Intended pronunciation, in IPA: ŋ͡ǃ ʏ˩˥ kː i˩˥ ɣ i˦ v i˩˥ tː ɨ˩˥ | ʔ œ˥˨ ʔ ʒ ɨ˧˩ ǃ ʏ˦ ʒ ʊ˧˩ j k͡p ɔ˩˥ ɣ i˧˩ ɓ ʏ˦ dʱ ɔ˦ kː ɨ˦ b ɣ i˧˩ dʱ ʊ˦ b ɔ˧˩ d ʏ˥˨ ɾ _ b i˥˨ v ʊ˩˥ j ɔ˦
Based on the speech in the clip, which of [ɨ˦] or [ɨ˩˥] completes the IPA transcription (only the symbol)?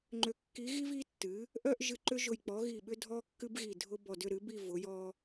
ɨ˩˥